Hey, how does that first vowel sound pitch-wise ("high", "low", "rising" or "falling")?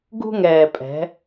high